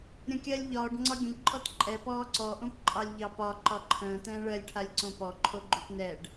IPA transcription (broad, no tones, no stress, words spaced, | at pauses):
ɾʲə̃kʲɜlʲ ʎɒːɖ ŋ͡ǀɒɡʲə̃ʎ ǃʼɔtǃʼɛ pɔːǀɔ ʔõpǃʼɑlʲʎɑpɒ ǃɒǃʰə̃ː tɛ̃ːɭɜlʲ ʈʰalʲǀõpɔ ǃʰoɡ͡ǃupnɛɖ